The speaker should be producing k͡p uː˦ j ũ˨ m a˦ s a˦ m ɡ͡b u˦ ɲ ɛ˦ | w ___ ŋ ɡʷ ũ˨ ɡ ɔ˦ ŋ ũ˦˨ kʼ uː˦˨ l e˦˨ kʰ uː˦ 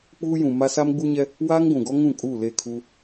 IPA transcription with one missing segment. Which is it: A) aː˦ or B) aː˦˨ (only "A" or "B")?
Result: A